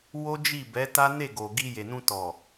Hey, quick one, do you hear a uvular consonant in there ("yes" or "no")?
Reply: no